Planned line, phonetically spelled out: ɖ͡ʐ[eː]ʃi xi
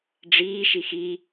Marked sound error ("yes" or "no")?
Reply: yes